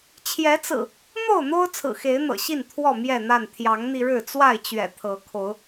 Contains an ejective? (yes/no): no